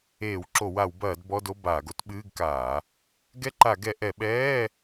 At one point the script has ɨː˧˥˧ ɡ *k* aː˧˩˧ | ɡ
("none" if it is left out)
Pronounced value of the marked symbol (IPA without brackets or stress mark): k